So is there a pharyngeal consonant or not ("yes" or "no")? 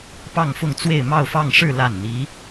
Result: no